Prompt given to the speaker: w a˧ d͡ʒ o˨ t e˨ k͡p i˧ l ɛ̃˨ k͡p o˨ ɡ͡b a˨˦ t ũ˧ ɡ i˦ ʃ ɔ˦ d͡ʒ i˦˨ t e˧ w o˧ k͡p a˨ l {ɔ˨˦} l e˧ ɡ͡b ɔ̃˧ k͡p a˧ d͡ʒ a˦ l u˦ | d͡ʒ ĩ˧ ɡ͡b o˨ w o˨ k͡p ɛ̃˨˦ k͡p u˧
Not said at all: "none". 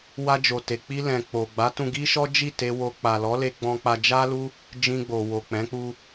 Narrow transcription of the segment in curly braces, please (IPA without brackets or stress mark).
ɔ˨˦